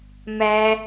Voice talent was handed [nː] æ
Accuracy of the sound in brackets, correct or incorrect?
incorrect